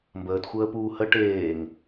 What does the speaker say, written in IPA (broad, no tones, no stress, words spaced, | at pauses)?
mbəːtxʷəːpuː hə ʈeːŋ